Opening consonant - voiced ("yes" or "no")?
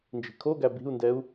yes